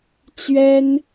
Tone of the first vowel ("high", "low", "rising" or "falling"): high